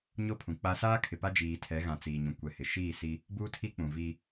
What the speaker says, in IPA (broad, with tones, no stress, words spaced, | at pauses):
ɲo˦˨pʰũ˨k͡pa˦ saː˦kʰɪ˨pa˦ d͡ʒiː˨tʰɛ˨˦ɣã˨ t͡siː˨ɲũ˨ kʷɛ˨ hɪ˨ ʃiː˦˨si˦ | buː˦tʰi˦k͡pũ˨ vi˦